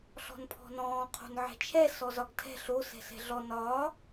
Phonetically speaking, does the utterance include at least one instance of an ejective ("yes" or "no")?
no